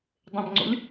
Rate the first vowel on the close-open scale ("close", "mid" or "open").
mid